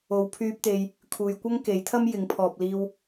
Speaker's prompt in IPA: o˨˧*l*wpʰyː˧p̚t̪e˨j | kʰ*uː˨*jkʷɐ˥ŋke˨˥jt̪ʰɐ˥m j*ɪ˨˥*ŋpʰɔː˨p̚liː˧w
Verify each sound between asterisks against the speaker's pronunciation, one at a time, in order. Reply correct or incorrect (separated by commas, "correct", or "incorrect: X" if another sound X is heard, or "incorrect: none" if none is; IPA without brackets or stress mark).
incorrect: none, correct, correct